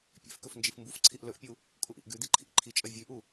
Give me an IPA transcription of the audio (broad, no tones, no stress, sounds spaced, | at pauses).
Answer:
pʲ ḛ f k ɵ f n d͡ʒ i f m b u f ǀʰ i ʔ l ɵ ʔ pʲ u | kʼ u ʔ ḭ ʔ ɡ ʉ d̪ i ǃʰ ḭ ʔ ǃʰ i t͡ʃʼ ɐ vʲ ʉ ʔ u